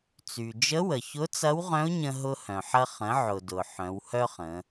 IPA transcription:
t͡s y˩ d͡ʒ ə˧˥ w ə˩ ç ʊ˧˥ t͡s ɐ˧˥ w ʁ œ̃˧˥ ʊ̯ ɲ ə̃˧ ɦ ʊ˧ h œ̃˩ ħ ɐ˧ χ ə̃˩˧ ʕ ʊ˩ d ʊ˩ ħ œ̃˩˧ w h œ˥ χ ə̃˩˧

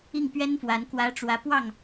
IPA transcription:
i˥˩ ŋ p ɥ ɛ˥ n f w a˧˥ n k w ä˧˥ ʈ͡ʂ w ä˧˥ p w ɑ˥˩ ŋ

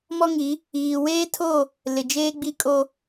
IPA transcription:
m ɔ˦ ŋ i˨˦ | iː˨ w eː˦ tʰ o˦˨ | l ɪ˨ d͡ʒ eː˦ ɡ͡b i˦ kʼ o˦

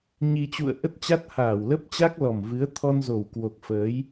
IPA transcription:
ɲ i˧ t͡ɕ ṵ˧˨ ə̯ ʔ ə˦˥ t̚ t͡ɕ a˦˥ t̚ h aː˧˩ w l ə˦˥ p̚ t͡ɕ a˦˥ k̚ l ɔ˨˩ m v ɨ˨˦ ə̯ t̪ʰ ɔ˧ n z o˨˩ w k w o˨˩ k̚ f əː˨˦ j

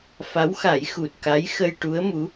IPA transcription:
f a˧˥ w x a˨˩˦ j x u˨˩ t̚ k a˧˥ j x ə˧ j ʈ u˧˥ ə̯ m u˧˥

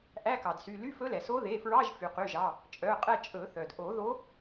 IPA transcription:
ʔ æ˧˥˧ k ɑ˩ d s y˩˧˩ l y˧˥˧ f ɵ˧˥ l ɛ˩ s o˧˥ ð e˩˧˩ f ɹ ɑ˧˥˧ ʒ f y˩ q y˩˧˩ ʒ ɑ˩˧˩ | t͡ʃʼ œ˩˧˩ qʼ ɛ˦˨ t͡ʃʼ ɵ˨˩˦ θ œ˩ d ʔ o˨˩˦ ð o˧˥

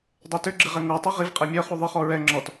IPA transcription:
dˤ ɛ t ʏ ɡ͡ǁ ɪ ʁ ɛ ŋ o tˤ i ʁ i v qʼ ɛ mʲ œ χ u ðˤ ɪ χ ɔ ɹ ɛ ŋ͡ǁ ɔ t

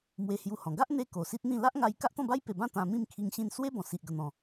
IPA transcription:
m w e˧ h j u˧ h ɔ̃˨˩ ɡ a˦ ʔ n̪ e˦ k o˨˩ s i˦ t̚ n̪ ĩ˥˧ l a˦ ʔ ŋ a˧ j k a˦ ʔ t̪ ɔ̃˥˧ b a˦ j p e˨˩ b ã˥˧ t̪ ã˧ m ĩ˥˧ m kʰ i˧ ŋ ɕ ĩ˧ n s w e˦ b ɔ̃˨˩ s i˨ ʔ ɡ ə˨˩ n̪ ɔ̃˨˩

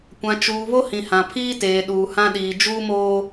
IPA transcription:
kʷ ã˨ t͡ʃ uː˨ β o˦ h ĩ˨ h ã˨ pʰ iː˦ t eː˨ ɗ uː˨ h ã˦ ɗ iː˨ d͡ʒ uː˦ m oː˦

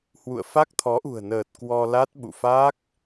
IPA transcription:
h w ṵ˧˨ ə̯ f a˦˥ k̚ t̪ʰ ɔ˨˦ ʔ ṳ˨˩ ə̯ n əː˨˩ t̚ k w ɔ˧ l a˦˥ t̚ ɓ ṵ˧˨ f a˦˥ k̚

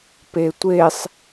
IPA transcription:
p e tʷ e sˤ

